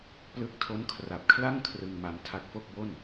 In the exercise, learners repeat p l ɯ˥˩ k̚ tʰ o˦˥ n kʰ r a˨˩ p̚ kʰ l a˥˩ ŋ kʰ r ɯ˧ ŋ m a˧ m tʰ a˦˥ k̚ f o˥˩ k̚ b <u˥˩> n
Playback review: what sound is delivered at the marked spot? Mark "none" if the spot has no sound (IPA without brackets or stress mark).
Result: o˥˩